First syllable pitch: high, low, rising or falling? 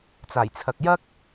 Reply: low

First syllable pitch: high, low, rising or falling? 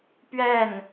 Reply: falling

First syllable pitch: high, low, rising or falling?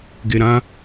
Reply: low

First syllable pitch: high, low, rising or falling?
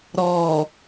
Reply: low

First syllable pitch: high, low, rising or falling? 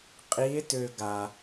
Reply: rising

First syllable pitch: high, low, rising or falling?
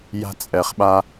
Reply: high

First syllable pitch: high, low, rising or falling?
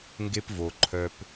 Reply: high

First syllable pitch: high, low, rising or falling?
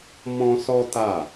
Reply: high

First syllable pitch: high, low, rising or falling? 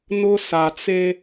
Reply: high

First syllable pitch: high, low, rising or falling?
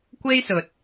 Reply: high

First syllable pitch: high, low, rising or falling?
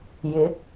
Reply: rising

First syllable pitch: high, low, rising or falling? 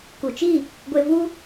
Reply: low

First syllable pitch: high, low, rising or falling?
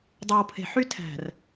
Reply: low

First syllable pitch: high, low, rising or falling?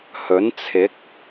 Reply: rising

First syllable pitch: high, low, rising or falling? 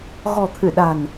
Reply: low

